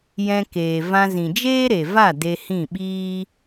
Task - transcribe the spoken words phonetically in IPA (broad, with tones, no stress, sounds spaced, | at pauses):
j ɛ̃˧ k eː˨ v ã˧ z ĩ˨ d͡ʒ eː˦ ɾ e˨ v a˦˨ d e˧ h ĩ˦˨ ɓ iː˦